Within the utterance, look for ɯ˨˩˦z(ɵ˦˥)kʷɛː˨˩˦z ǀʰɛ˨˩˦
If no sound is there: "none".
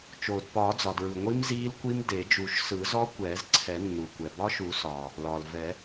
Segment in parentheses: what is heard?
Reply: ɔ˦˥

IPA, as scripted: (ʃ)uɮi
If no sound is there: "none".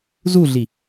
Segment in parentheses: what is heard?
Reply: z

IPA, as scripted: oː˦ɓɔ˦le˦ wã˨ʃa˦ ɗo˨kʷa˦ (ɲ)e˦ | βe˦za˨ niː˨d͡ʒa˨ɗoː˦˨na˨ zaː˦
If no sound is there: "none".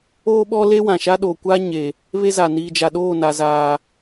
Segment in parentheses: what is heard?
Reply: ɲ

